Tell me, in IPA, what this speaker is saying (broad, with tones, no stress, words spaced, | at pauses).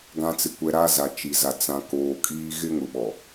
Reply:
ɡã˨t͡sɪ˨kʷɛ˨ ɾa˦za˨t͡ʃi˨za˨ t͡sã˨koː˨kʼiː˦ ɣɪ˦ŋʊ˨ɓɔ˨